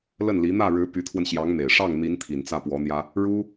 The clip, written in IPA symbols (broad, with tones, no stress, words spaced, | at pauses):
lə˥˩nli˧˥ n̪ä˥˩ɻɻ̩˧˥ py˧˥t̪ʰwə˧nɕjɑ˧˥ŋn̪e˨˩ɪ̯ ʂɑ˥˩ŋn̪i˧˥n t̪ʰi˨˩nt͡sä˥˩pwɔ˧˥n̪jä˥ | ɻu˥